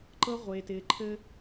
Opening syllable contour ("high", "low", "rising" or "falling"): high